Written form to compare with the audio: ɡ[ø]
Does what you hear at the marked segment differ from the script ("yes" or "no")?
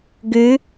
no